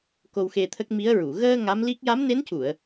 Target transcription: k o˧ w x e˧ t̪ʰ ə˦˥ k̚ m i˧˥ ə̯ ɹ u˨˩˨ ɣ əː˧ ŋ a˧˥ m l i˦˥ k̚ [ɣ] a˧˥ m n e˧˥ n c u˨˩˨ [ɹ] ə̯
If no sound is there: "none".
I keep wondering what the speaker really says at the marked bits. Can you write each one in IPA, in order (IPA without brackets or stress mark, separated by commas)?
j, none